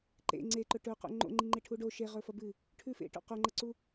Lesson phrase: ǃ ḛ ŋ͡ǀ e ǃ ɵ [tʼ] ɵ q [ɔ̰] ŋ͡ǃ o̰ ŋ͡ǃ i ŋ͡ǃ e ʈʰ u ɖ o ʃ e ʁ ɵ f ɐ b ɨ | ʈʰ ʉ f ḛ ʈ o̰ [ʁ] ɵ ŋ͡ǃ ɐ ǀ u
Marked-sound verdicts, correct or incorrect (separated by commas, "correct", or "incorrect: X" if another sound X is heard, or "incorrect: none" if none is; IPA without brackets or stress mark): incorrect: ʈ, incorrect: o̰, incorrect: q